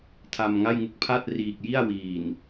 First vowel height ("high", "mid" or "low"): low